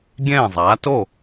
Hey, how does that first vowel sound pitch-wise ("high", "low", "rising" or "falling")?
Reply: falling